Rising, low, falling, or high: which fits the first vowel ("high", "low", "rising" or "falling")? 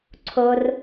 high